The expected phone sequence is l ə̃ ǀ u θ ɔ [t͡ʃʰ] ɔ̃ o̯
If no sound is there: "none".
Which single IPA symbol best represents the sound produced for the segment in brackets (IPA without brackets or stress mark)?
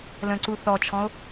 t͡ʃʰ